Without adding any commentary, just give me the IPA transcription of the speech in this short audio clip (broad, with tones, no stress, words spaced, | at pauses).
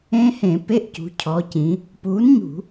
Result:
ẽ˦˥hẽ˧˩˧ pe˧˥˧ʔcṳ˩˧cʰɔ˩˧ cĩ˩˧ | puː˨˥nɲṳ˧˩˧